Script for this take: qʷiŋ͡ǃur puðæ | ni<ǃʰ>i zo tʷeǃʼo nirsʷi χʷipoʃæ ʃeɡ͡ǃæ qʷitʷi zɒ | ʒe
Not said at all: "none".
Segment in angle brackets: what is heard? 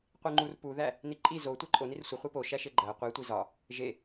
ǃʼ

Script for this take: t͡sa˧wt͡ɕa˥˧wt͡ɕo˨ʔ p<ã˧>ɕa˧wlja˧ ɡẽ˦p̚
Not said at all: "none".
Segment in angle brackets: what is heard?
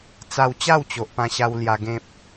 ã˧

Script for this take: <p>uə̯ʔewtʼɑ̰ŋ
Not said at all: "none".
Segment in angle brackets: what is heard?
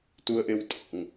t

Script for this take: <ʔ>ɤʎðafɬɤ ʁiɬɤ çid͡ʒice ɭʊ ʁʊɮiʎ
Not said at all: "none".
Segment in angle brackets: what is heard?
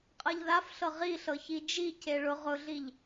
qʼ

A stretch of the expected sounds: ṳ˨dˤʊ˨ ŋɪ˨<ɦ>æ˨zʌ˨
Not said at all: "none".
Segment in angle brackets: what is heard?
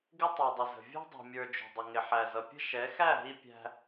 ħ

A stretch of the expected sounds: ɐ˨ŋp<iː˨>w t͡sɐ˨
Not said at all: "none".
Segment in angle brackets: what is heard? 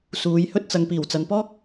iː˨˩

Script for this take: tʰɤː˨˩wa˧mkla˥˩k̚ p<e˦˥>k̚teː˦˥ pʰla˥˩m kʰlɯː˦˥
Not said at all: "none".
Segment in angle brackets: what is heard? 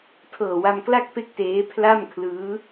e˥˩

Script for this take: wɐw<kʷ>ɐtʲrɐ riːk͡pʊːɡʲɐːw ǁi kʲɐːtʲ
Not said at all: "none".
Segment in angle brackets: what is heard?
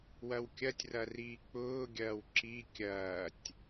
kʲ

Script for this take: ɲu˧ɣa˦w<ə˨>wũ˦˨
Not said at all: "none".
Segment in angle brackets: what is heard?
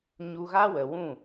ə˨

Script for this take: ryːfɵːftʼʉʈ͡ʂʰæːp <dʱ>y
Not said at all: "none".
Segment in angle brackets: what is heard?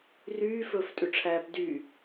d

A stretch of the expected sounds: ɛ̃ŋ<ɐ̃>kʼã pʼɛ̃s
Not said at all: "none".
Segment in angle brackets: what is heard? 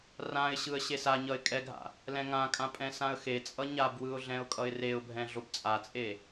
ã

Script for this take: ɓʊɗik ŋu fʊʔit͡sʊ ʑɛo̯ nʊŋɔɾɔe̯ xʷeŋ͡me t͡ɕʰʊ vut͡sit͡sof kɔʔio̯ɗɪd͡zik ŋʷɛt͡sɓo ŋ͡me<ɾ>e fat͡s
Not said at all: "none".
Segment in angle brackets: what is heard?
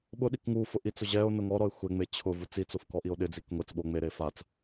ɾ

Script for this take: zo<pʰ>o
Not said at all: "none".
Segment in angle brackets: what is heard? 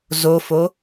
f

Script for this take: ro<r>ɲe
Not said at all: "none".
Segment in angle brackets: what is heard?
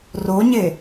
none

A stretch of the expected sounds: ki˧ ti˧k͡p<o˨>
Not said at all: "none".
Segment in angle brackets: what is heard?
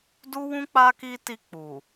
u˨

